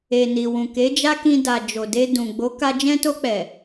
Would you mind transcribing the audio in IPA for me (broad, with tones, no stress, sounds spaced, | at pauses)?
e˨ n i˨ w ũ˨ k e˨˦ d͡ʒ a˦ k ĩ˧ d a˨ d͡ʒ o˨ d e˧ d ũ˨ ɡ͡b o˨˦ k a˧ d͡ʒ ɛ̃˦ t o˧ k͡p ɛ˨